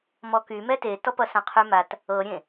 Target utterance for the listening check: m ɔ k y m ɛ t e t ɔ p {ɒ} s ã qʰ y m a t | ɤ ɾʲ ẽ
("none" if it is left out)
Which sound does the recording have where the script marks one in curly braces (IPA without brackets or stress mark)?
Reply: ʌ